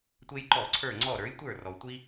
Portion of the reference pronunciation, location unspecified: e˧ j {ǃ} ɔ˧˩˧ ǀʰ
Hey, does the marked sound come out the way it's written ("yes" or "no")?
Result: yes